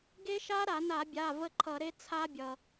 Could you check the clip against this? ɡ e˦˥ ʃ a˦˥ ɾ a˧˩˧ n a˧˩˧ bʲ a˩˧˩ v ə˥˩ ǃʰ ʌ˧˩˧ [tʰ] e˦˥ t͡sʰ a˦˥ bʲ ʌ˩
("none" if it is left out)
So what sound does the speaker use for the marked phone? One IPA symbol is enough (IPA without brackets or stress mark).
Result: ɾ